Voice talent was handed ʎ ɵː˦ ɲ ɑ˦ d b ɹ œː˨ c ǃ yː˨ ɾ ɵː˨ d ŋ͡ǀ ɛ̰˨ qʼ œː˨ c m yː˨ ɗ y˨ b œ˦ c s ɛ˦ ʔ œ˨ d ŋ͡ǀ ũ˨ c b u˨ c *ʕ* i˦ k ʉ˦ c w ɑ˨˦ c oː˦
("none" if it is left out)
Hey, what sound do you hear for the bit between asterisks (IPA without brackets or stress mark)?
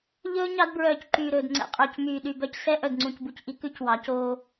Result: ʔ